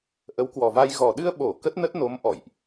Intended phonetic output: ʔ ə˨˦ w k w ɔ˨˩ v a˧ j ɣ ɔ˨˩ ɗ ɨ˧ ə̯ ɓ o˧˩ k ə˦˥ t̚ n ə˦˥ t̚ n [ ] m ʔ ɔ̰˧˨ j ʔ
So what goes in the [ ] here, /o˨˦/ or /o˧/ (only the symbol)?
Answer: o˨˦